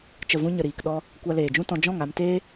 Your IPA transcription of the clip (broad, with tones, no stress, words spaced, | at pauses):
t͡ʃə˨vũ˧ ɲə˨ɾiː˨k ɗɔ˧ | kʷa˧leː˨d͡ʒũ˦tɔ̃˧ d͡ʒɔ̃˦˨ŋa˧mteː˦